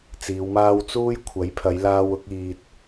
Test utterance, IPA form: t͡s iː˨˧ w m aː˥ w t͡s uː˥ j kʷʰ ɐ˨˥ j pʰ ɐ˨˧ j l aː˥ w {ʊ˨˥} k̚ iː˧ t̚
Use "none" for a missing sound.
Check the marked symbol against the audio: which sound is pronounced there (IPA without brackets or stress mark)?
ʊ˥